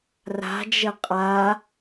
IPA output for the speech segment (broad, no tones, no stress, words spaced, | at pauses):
ra̤d͡ʒə qʼa